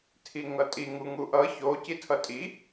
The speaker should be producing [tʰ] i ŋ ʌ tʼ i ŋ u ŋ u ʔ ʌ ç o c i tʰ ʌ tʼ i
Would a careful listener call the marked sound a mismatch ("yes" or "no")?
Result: no